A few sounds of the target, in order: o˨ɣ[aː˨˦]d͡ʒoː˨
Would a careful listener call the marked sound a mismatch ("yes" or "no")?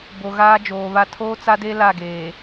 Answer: yes